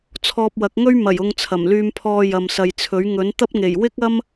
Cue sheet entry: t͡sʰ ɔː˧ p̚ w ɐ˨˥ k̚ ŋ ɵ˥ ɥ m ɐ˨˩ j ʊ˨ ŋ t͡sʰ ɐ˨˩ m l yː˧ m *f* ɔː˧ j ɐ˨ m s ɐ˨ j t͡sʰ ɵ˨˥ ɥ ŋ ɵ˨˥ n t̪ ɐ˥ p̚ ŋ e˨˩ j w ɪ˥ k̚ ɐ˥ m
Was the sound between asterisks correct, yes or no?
no